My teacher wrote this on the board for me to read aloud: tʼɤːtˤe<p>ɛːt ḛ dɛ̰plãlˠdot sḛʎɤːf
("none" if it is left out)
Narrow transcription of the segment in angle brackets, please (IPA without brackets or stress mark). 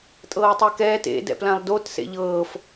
k